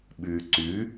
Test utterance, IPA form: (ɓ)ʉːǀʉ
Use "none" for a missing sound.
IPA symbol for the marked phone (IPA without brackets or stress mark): ɓ